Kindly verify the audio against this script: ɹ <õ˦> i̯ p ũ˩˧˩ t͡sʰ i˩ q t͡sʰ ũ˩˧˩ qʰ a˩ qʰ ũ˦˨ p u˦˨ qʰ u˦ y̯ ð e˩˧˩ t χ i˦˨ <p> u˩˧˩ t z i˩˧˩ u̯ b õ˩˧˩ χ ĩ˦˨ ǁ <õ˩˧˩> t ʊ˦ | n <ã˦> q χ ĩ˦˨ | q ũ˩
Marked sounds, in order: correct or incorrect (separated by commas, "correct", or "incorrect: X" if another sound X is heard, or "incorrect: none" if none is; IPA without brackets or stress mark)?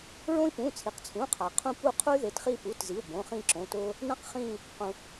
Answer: correct, correct, correct, correct